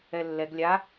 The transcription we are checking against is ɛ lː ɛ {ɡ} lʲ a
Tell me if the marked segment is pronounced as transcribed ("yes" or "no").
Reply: yes